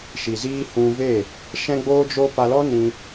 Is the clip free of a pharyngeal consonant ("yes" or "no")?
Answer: yes